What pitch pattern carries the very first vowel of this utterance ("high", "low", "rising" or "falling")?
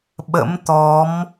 rising